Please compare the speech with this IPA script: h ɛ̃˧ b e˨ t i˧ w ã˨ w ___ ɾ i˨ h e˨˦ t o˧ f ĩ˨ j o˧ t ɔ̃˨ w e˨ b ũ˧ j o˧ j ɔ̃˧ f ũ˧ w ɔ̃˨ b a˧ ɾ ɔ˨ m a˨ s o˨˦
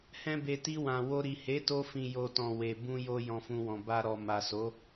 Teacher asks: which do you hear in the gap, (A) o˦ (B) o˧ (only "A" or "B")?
B